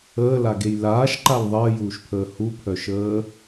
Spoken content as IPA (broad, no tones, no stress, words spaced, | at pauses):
əːlaɡej laːʃǃal ðˤəːjuːʃpʰəː hupʰœʃəː